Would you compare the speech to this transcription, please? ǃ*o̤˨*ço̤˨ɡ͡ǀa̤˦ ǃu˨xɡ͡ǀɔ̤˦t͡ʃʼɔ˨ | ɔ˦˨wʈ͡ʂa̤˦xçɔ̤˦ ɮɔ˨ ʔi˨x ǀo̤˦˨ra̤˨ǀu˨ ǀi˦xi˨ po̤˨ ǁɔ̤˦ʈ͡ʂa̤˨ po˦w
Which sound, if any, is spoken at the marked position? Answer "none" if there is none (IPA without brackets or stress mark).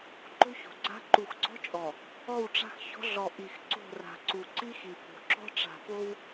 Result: o̤˦